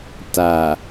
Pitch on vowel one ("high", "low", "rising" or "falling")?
low